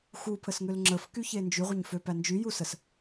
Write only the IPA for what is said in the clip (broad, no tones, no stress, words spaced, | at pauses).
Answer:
xupʰəsŋøl ŋ͡ǁəfkyçe nd͡ʒyʁʷɐɲføpæ nd͡ʒyjusəs